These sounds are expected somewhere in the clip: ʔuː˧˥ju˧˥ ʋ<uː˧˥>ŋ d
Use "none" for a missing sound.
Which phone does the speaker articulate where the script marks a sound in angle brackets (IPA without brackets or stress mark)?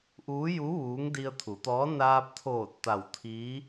uː˧˥